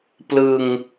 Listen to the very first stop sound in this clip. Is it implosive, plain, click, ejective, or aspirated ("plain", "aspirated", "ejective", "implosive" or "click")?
plain